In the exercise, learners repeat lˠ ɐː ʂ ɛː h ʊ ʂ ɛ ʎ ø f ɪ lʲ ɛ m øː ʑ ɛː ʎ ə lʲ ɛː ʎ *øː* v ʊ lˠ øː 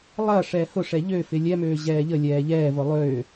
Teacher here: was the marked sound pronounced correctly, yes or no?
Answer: no